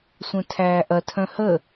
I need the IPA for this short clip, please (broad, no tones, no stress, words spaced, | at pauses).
sʷœ̃tʰæːʔɐ tʰœ̃hə